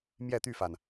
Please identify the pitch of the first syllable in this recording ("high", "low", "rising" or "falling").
falling